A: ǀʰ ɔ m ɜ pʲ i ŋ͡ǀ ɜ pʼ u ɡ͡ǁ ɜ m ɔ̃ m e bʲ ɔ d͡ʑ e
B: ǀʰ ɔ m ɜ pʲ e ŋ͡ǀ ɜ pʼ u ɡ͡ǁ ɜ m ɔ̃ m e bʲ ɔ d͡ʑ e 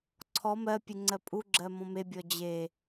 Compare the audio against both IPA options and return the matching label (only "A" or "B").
B